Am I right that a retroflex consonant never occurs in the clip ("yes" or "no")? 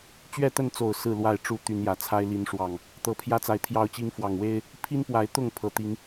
no